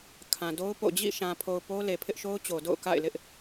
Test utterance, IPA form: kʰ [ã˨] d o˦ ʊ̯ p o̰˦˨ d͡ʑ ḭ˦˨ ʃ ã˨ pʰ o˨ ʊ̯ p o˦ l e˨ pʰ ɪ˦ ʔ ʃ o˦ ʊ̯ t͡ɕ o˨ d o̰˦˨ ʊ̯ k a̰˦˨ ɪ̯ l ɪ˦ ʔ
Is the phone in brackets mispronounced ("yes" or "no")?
no